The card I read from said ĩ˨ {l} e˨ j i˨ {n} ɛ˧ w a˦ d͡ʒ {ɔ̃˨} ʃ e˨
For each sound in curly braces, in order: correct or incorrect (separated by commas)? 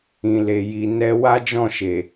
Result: correct, correct, incorrect